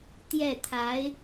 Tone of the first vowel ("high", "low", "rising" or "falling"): falling